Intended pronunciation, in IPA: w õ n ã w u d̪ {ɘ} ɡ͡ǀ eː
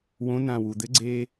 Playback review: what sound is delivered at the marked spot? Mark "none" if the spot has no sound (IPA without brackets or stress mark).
ɘ